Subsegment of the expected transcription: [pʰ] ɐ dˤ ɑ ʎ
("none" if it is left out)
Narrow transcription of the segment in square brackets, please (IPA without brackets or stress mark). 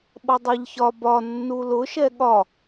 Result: ɓ